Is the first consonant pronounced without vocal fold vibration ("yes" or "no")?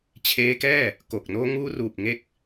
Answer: yes